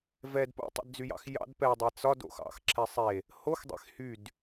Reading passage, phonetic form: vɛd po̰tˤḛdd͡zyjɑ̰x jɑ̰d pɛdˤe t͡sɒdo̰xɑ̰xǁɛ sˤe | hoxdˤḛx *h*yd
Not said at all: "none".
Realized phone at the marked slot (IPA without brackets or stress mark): h